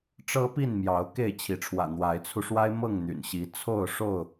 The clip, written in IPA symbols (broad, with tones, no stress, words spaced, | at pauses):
ʈ͡ʂɤ˦pi˥˨nmjɑ˨˦ʊ̯ ke˥˨ɪ̯t͡ɕʰi˨˦ʈ͡ʂʰwä̰˨˩ n̪wa˨˦ɪ̯t͡sʰu˧ʂwa˦ɪ̯mɤ˥˨ŋ n̪y̰˨˩nɕi˨˦ t͡sʰo˥˨ʊ̯ʂo˥˨ʊ̯